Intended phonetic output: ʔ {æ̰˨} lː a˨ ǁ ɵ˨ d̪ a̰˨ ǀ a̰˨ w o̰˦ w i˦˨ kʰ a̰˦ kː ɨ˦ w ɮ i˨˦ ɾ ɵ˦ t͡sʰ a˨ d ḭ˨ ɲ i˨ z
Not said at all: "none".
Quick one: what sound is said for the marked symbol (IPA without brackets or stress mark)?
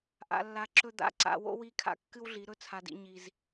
a̰˨